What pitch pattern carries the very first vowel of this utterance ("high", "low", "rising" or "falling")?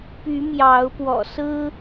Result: rising